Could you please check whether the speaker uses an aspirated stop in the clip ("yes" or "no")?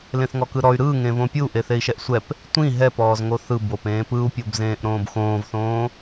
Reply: no